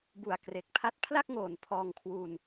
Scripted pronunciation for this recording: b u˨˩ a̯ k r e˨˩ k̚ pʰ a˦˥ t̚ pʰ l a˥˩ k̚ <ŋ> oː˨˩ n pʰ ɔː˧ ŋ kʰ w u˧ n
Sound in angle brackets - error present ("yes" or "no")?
no